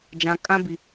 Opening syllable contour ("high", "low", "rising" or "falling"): low